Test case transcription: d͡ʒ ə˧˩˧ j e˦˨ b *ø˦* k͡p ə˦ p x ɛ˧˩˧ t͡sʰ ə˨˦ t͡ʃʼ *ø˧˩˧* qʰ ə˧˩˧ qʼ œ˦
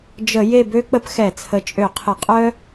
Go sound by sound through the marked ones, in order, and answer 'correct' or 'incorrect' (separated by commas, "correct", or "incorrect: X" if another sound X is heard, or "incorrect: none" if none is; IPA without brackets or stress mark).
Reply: correct, correct